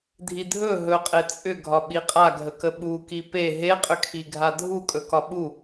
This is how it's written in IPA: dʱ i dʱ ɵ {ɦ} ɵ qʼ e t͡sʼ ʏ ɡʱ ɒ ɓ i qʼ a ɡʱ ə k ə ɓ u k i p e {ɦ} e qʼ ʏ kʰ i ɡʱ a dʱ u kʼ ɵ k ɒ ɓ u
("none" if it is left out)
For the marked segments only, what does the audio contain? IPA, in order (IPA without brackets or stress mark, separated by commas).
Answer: ɦ, ɦ